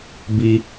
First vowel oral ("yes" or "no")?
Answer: yes